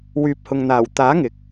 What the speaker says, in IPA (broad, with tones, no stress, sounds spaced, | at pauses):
w yː˨ p̚ h ʊ˨ ŋ n̪ aː˨˩ w t̪ aː˨˥ ŋ ɪ˨ k̚